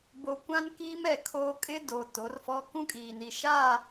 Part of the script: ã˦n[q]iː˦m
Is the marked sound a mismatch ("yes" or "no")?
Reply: yes